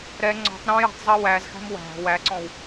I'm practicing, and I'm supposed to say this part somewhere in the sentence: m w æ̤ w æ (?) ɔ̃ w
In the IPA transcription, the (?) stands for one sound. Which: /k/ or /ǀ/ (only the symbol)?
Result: ǀ